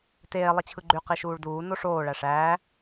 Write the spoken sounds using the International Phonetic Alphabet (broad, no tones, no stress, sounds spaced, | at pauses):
t eː lˠ i t͡ɕʰ ɯ ɡ͡ǃ y q i ʃ uː ɭ d uː n o ʂ oː ɭ æ ʂ æː